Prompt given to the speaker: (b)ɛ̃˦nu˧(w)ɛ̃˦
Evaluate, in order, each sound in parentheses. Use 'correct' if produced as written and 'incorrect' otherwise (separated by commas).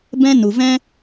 correct, incorrect